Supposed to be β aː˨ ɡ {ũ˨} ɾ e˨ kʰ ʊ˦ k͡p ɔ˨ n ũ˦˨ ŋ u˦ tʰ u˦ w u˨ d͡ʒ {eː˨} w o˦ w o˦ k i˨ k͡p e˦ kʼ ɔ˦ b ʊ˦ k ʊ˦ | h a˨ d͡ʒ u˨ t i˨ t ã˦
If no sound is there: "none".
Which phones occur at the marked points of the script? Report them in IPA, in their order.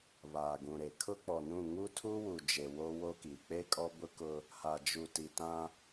ũ˨, e˨

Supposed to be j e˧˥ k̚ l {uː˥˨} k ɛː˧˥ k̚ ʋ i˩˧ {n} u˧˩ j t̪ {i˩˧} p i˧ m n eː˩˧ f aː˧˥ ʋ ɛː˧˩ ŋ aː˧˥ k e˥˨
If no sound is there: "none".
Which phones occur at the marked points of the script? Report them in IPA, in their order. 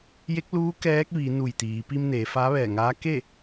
uː˧˥, n, iː˩˧

